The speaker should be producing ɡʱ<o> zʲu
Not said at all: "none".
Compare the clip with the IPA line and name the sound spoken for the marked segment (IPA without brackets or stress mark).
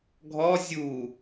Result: ɔ